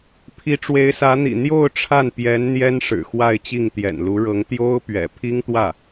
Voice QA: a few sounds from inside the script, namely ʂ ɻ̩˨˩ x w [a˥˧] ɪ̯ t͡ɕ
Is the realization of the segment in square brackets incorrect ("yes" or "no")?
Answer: no